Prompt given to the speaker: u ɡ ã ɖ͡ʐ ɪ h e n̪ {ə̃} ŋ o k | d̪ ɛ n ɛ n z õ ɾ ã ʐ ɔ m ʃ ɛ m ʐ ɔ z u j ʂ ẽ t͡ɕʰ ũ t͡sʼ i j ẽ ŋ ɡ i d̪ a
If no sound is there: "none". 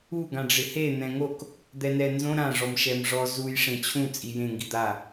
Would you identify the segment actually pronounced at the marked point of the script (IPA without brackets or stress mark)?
ɛ̃